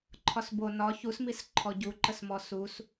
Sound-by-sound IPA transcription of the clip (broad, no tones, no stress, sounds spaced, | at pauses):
ǃʰ ɒ s b o n ɒ ç u s m i s ǃʰ ɔ ɟ u ǃ ə s m ɔ s u s